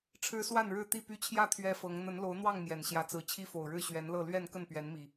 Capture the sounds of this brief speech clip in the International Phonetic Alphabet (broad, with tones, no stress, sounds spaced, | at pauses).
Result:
ʈ͡ʂʰ ɻ̩˦ s w a˥˨ n ɻ ɻ̩˥˨ t̪ i˥˨ p y˦ t͡ɕʰ j ä˥˨ t̪ʰ ɥ ɛ˦ f ɤ˨˦ ŋ n̪ ə˨˦ n l o˨˦ ʊ̯ n̪ w ɑ˥˨ ŋ m j ɛ˨˩ n ɕ j ä˨˦ t͡s ɹ̩˨˦ t͡ɕʰ i˦ f o˨˩ ʊ̯ ɻ ɻ̩˥˨ ɕ ɥ ɛ˨˦ n l ɤ˥˨ l ɥ ɛ˥˨ n k ə˥˨ n p ɥ ɛ˨˦ n m i˨˩